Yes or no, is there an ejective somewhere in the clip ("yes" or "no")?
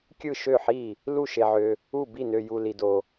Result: no